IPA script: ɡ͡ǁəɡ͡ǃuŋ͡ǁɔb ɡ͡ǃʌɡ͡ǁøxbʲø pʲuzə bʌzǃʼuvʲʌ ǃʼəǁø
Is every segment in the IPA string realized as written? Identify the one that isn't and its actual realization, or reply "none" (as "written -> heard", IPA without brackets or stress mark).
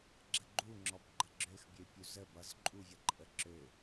none